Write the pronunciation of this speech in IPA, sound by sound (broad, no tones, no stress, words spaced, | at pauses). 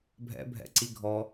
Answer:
bʱɛ̰ bʱɛ̰ǀiɡʱɔ